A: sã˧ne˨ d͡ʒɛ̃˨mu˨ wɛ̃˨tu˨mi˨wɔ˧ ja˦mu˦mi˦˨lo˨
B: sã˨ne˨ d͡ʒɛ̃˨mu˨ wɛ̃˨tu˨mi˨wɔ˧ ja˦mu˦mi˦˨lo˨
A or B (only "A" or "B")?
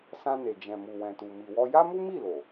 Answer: A